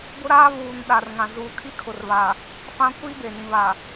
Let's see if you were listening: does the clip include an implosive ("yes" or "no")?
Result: yes